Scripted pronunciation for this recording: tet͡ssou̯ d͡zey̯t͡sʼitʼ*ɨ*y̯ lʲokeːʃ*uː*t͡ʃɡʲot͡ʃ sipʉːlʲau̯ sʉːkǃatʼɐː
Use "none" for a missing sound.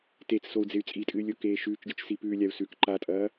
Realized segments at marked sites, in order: ɨ, ʉː

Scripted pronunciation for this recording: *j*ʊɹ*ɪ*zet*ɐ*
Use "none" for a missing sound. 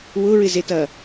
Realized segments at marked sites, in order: w, ɪ, ɐː

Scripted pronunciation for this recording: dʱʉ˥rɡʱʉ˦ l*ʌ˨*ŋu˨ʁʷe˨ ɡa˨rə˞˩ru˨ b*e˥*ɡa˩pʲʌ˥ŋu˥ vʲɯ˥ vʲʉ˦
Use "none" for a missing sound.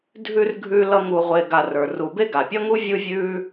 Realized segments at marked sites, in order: ʌ˦, e˥

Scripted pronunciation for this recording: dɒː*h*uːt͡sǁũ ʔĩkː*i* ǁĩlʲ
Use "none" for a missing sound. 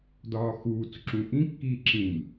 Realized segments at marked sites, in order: x, iː

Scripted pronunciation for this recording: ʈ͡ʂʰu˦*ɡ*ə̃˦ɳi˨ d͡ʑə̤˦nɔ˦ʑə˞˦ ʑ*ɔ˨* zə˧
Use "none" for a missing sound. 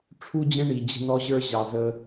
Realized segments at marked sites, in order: d͡ʑ, ɑ˨

